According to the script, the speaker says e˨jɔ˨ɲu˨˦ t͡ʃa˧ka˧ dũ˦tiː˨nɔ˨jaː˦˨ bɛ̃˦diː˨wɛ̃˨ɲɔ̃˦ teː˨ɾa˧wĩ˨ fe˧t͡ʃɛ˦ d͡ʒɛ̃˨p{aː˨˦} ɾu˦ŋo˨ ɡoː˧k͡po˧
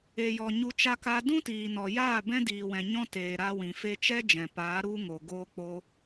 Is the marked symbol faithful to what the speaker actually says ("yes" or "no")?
yes